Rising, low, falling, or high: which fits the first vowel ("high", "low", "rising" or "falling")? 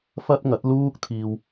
high